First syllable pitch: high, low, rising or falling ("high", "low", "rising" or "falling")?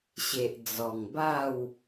low